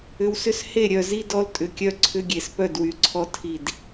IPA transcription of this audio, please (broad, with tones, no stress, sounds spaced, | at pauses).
ʏ˨ w s ʏ˦ s h e˦˨ ɾʲ œ˨ z i˦ d ɔ˦ l tʼ ʏ˨ kʲ œ˦ ǀʰ ʏ˦ ɡʲ e˨ s p œ˦˨ d w y˨ ǀʰ ɔ˦ tʰ i˦˨ d